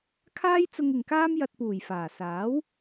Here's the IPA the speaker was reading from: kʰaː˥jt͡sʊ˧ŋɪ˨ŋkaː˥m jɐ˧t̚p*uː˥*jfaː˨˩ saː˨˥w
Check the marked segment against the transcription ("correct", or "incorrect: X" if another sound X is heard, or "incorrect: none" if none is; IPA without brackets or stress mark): incorrect: uː˨˩